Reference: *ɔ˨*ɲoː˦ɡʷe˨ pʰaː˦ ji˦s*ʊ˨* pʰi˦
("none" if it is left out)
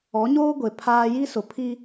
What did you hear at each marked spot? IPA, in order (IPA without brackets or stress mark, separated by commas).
ɔ˨˦, ʊ˨